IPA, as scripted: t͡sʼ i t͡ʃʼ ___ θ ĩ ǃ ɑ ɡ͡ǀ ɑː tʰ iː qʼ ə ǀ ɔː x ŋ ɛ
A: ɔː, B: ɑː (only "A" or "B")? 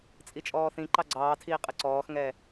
A